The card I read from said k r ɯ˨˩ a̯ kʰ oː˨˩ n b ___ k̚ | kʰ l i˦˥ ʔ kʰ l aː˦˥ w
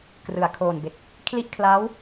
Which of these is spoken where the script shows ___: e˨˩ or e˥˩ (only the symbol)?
e˨˩